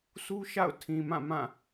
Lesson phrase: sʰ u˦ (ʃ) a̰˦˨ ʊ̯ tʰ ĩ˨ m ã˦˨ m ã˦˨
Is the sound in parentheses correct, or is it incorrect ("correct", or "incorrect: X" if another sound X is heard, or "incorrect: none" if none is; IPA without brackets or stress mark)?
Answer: correct